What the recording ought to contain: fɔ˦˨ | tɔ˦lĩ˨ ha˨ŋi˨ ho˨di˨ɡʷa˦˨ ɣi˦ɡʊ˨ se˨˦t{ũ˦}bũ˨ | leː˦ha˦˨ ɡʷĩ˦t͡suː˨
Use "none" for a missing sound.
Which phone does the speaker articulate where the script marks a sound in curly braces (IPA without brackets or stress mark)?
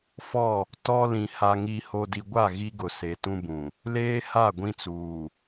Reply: ũ˦